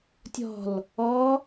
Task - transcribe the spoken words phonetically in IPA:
tʲ ɔ̤ l | ɔ

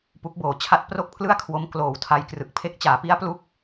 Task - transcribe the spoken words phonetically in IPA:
p u˦˥ k̚ b oː˨˩ t͡ɕʰ a˥˩ t̚ p r o˥˩ k̚ pʰ l ɯ˥˩ a̯ kʰ w o˦˥ m k l oː˩˦ w tʰ a˦˥ j k r ɯ˨˩ k̚ pʰ e˦˥ k̚ t͡ɕ aː˩˦ p i˦˥ a̯ p l u˦˥ k̚

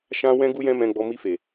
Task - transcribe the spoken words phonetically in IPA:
ʃ ã˦ w ɛ̃˦ ɡ u˦ j ɛ̃˦ m ɛ̃˧ ɡ͡b ɔ˧ m i˧ f e˨

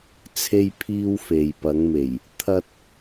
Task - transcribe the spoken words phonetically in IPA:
t͡sʰ e˥ j pʰ iː˥ w f e˨ j p ɐ˨˧ ŋ m e˨˩ j | t̪ʰ ɐ˥ t̚

